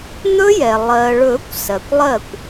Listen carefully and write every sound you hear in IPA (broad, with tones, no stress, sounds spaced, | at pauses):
n̪ ɵ˦˥ j ɛ˩ lˠ ɜ˩ ɭ ɵ˨˩˦ kʷ s ɜ˩ kʷ lˠ ɜ˥˩ kʷ